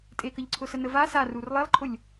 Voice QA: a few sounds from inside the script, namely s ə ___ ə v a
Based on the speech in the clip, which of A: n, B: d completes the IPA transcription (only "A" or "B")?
A